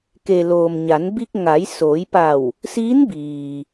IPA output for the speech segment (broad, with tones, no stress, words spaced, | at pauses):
ke˩loː˩m ɲa˩˧nbi˧k̚ ŋa˩˧jsoː˩˧jpa˧˩w | siː˧˥nbiː˩